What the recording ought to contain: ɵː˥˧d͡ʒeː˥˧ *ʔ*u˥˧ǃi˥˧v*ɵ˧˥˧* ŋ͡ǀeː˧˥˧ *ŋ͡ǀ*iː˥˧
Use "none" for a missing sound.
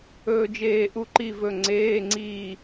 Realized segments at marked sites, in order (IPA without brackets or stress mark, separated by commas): ʔ, ɵ˧˥˧, ŋ͡ǀ